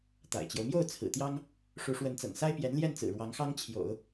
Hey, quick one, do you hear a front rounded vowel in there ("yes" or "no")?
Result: no